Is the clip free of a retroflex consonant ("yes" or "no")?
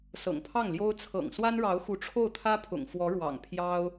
no